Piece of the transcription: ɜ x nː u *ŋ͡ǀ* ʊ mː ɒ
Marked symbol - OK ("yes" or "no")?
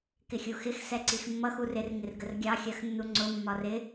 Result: yes